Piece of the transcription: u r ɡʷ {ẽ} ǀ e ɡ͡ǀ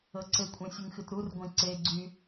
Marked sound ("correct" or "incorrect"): correct